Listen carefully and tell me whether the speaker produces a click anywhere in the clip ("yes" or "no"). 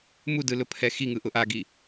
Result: no